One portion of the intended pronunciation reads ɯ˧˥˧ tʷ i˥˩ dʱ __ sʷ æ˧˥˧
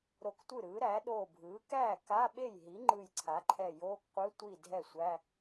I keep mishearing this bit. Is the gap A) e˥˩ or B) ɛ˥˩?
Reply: B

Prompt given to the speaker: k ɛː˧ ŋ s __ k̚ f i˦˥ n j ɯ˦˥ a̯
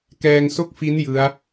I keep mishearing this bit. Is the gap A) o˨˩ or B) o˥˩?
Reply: B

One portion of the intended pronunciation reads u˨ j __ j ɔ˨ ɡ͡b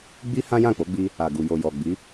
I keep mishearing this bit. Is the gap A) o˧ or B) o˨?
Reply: B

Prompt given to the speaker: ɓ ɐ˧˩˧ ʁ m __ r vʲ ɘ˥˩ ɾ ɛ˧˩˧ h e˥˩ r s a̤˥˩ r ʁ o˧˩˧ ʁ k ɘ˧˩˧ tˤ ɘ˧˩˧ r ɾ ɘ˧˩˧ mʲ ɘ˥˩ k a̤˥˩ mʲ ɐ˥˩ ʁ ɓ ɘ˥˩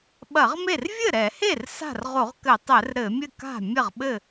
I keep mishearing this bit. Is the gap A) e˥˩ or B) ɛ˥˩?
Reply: A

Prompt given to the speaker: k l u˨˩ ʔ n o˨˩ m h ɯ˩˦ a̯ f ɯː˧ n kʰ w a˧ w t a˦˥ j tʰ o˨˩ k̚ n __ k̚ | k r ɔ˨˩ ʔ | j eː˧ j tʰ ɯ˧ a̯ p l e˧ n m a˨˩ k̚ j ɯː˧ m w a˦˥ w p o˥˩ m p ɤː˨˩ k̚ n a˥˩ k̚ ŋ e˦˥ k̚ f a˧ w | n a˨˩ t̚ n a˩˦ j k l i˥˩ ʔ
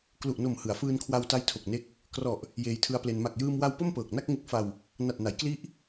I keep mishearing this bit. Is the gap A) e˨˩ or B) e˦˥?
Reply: B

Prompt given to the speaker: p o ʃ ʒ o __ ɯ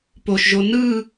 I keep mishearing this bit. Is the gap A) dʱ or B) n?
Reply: B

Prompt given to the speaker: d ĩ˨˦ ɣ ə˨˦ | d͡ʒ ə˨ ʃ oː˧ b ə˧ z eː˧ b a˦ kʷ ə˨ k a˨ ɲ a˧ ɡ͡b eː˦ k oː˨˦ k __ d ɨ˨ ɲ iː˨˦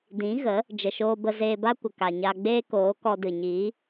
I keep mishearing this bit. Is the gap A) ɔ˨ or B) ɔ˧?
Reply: B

